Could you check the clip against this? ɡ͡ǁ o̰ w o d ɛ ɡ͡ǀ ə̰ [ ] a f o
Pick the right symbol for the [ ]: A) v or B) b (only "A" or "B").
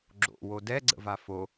A